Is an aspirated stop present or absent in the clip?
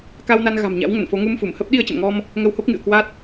absent